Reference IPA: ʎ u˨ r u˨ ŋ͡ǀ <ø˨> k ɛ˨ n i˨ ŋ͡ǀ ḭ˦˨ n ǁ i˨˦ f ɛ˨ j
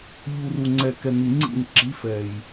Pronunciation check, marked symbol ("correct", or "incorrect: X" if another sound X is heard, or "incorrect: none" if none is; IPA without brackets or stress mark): incorrect: ɛ˨